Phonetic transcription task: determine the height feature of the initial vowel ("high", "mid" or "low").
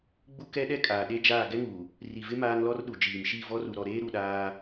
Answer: high